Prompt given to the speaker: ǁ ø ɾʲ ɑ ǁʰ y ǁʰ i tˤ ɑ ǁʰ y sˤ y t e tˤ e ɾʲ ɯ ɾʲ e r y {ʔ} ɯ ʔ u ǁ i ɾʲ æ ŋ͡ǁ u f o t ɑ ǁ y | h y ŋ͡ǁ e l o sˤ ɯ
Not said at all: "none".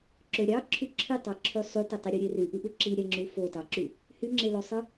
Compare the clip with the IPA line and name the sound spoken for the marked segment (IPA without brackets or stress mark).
ʔ